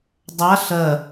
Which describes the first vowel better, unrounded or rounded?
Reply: unrounded